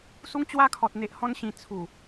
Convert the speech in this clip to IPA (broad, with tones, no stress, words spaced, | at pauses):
su˦ŋt͡ɕwa˥˧kʰɔ˨t̚ n̪e˨ʔhɔ̃˧n ɕĩ˨˩ t͡sʰu˨˩